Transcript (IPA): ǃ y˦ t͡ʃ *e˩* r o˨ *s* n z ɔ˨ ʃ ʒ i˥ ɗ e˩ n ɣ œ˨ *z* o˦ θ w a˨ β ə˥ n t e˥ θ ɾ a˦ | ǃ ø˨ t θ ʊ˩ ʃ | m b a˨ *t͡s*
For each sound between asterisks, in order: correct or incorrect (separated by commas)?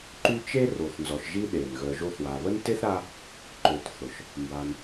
incorrect, incorrect, incorrect, incorrect